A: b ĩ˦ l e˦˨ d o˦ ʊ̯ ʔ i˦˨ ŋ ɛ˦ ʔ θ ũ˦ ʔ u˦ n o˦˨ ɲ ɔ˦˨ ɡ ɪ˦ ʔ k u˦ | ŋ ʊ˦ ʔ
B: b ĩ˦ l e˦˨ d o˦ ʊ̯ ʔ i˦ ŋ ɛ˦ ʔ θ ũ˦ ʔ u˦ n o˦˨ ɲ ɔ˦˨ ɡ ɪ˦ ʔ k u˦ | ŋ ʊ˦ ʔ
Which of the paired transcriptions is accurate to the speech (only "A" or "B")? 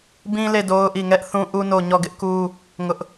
A